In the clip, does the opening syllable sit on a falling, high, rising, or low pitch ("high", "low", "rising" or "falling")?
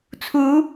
rising